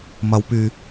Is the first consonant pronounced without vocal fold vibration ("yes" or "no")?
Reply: no